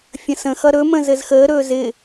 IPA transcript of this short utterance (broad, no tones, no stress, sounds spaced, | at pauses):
fʲ ə̃ s ə̃ x ʌ ɾ ɵ m ə̃ z ɘ z x əː ɾ ɵː z ɪ